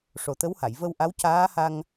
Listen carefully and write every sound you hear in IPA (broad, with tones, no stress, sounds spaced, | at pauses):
ʂ o˨˩ t̪ ə˧˥ w h a˨˩˨ j v ə˧ w ʔ a˧˥ w c aː˧˥ h a˧ ŋ